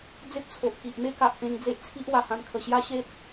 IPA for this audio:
d͡z e˦ p̚ t͡sʰ o˨ ʔ k i˨ ʔ m e˦ k a˨ ʔ p ẽ˧ ŋ d͡z e˦ ʔ t͡sʰ i˦ ʔ w a˨˩ h ã˧ n kʰ ə˨˩ ɕ j a˦ ɕ e˦ t̚

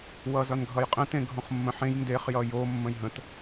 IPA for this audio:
w ʌ z ʌ n ɡʱ ʌ j qʼ ə̃ t ẽ ɡʱ õ χ mː ə̃ ħ ẽ j n d e χ j ʌ j o mː ə̃ j ɦ ə̃ t

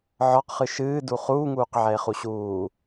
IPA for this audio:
ʕ ɒ q χ ɨ ʃ ɨː d u χ uː ŋ uː q ʕ ɛ e̯ χ u ɕ uː

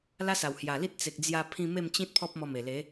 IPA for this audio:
l a˦ s a˨˩ w h j a˨˩ l i˦ t̚ t͡s e˨ k̚ d͡z j a˧ pʰ ĩ˧ m e˥˧ m t͡ɕ ĩ˦ t̚ pʰ ɔ˦ p̚ m ɔ˧ m e˨˩ l e˨˦

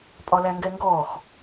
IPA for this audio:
pʼ ɒ l æ ŋ ɡ ɛ ŋ ɡ ɔ x

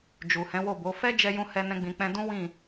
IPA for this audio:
d͡ʒ u˨ h ɛ̃˨˦ w o˦˨ b o˨˦ f ɛ˦ d͡ʒ ɛ˧ j ũ˦ h ɛ˦ n ɛ̃˦ ɡ͡b ĩ˧ k͡p ɛ̃˧ d ũ˦ w ĩ˦˨

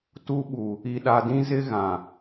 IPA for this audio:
t u˦ ɓ u˨ | i˨ ɗ a˨ d ĩ˦ z ɪ˦ ɣ ã˨

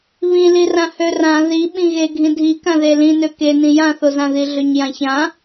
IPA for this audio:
β ĩ l i r ã h ø r ã ð i ɓ ĩ ɣ e ɡʱ ĩ dʱ i k ã ð e l ĩ n ø k e n ĩ j ã θ o z ã ð i ɮ ø ɲ j ã ç ã

